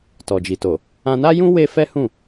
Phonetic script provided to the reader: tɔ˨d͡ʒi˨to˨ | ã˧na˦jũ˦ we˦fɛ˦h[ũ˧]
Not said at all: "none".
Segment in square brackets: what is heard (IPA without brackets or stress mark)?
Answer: ũ˦˨